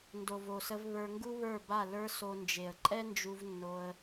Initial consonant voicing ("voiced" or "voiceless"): voiced